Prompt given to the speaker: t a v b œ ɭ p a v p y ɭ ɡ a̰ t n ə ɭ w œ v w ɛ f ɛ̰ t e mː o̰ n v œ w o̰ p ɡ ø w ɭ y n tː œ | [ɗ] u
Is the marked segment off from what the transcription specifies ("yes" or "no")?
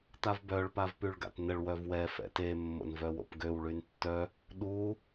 no